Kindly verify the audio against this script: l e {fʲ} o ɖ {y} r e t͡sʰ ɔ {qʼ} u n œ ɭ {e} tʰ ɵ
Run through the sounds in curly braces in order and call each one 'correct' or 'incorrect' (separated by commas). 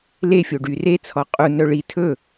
correct, correct, correct, incorrect